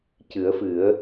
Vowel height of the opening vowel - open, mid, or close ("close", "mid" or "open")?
close